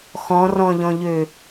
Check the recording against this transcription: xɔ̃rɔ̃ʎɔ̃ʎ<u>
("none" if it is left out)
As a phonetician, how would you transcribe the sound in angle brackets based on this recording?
ø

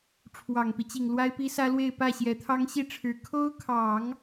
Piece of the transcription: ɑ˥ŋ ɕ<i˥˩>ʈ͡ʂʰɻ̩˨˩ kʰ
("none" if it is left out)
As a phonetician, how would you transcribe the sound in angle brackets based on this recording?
i˥˩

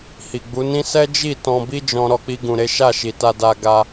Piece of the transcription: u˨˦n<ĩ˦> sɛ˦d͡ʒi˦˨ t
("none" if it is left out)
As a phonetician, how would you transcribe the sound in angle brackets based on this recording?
ĩ˦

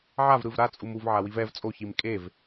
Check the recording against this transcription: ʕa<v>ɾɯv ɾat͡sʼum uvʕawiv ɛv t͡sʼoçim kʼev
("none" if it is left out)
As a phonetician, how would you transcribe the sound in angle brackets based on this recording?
v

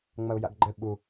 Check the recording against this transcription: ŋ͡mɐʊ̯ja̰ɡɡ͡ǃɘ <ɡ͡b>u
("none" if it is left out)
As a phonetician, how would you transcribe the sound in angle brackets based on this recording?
ɓ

